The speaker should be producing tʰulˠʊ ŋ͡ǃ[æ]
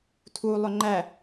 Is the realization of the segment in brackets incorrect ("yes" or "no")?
no